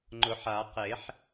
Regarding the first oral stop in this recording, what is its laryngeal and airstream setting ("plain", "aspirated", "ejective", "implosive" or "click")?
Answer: click